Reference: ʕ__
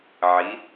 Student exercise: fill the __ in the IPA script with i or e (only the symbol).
i